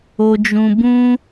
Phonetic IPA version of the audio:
o˧ d͡ʒ ũ˧ b ũ˦

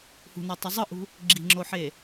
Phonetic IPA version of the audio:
h ṳ n ɑ tˤ ø zˤ ɯ ʔ ṳ | ɡ͡ǁ i̤ ŋ͡ǁ o ħ e

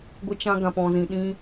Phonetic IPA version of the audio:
ɡʷ ə˦ t͡ʃ ã˦ ɡ ã˧ p ɔ̃˧ z ĩ˧ ɗ ĩ˦

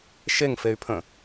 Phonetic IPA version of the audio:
ʃ e ŋ f e y̯ pʰ ə̃

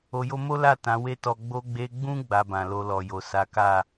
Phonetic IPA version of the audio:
o˧ j o˦ m o˦ l a˦˨ t ã˨˦ w e˦ t ɔ˧ ɡ͡b o˧ ɡ͡b e˧ ɡ͡b ũ˦ ɡ͡b a˧ b ã˨ l o˧ l ɔ˨ j o˨ s a˨˦ k a˦˨

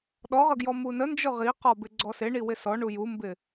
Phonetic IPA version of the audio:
ɗ ɔ ʁ ə ɡ j ɔ m u n ə n d͡ʒ ʊ ʁ i q ɔ b ɪ ɡ͡ǀ ɔ s ɪ ɳ i w ɪ s ɔ ɳ u j u m b ɪ

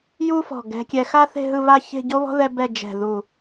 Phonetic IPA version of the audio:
j u˥ f ɔ̤˧˩ ɡ ɛ̤˧ kʲ ɛ˧ x a˥ θ e̤˥˧ ɦ ɯ˥˧ β a˥˧ ç e̤˥˧ ɟ o˥ β ɔ̤˥ ð ɛ˥ b ɛ˥˧ d͡ʒ ɛ̤˧˩ ð u˧˩

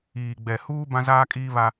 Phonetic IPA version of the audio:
iː˨ ɡ͡b ɛ˨ h uː˦ b ã˦ z aː˦ kʼ iː˦ β a˦

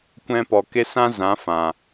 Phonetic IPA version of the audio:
kʷ ɛ̃˧ p ɔ˨ k e˦ s ã˦ z ã˨˦ f ã˨

